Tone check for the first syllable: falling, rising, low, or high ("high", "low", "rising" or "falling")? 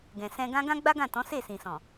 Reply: low